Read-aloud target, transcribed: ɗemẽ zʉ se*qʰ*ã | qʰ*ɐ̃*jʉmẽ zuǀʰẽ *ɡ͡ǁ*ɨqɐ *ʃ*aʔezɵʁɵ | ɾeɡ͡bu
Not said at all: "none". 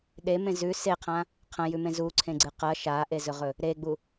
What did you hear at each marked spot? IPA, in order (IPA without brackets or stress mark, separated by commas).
qʰ, ɐ̃, ɡ͡ǀ, ʃ